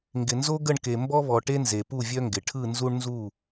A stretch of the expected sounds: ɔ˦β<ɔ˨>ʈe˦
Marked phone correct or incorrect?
correct